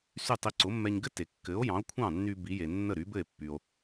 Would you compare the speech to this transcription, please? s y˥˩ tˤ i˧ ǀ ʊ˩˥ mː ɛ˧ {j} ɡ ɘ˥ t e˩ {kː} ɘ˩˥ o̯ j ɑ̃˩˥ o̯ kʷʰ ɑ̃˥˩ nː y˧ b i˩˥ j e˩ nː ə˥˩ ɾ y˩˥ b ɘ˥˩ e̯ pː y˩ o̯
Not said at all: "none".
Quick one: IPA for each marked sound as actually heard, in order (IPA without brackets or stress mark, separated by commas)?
ɲ, kː